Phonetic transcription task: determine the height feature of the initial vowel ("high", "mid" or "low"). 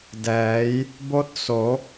mid